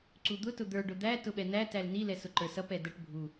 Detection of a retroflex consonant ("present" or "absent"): present